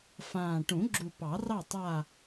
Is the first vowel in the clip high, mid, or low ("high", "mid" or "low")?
low